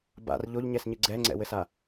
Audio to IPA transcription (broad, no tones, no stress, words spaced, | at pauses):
ba̰r ʎoʎɲɛsɲɨ ɡ͡ǀɛŋ͡ǀɛ̰wɘsa